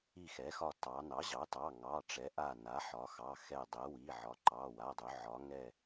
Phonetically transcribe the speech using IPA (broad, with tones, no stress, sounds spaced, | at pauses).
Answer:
i˧˩ x ɛ˩˥ x ɒ˧˩ t ɑ˩˧ n ɑ˩˥ ʑ ɑ˩˥ t ɑ˩˧˩ ŋ ɑ˩˧˩ ʈ͡ʂ ɛ˩˥ ʔ a˧˩ n a˩˥ ħ ɒ˩˧ x ɑ˩˧˩ x ɛ˧˩ dˤ ɛ˩˥ w i˩˧˩ ʕ ɒ˩˥ ǃ ɑ˩˧˩ w a˩˧˩ dˤ ɵ˩˧ ʕ ɒ˩˧ ŋ ɛ˧˩